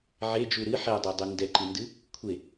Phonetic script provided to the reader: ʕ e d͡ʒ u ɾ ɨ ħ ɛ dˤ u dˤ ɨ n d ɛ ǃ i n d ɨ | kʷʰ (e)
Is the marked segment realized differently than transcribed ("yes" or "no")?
no